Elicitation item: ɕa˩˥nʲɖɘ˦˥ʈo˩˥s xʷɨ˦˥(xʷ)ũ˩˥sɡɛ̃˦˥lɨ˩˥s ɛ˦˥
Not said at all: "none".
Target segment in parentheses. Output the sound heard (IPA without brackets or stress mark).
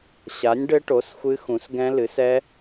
x